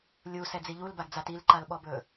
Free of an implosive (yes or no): no